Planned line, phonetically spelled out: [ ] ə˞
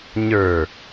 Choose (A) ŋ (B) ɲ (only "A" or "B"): B